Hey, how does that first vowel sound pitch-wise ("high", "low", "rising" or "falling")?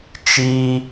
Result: high